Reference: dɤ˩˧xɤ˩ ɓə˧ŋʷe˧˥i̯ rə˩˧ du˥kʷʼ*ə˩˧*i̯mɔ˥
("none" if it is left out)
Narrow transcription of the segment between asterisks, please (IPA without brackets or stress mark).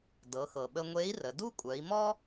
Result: œ˩˧